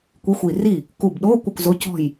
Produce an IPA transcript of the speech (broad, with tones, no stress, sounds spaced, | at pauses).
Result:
kʷ i˧˥˧ xʷ i˧˩ r i˥˩ | k u˧˩ b ɗ o˧˥˧ kʷ ʌ˥˩ kʷ z o˧˥˧ c ɔ̤˥˩ j